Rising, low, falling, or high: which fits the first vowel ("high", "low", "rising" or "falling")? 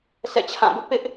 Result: falling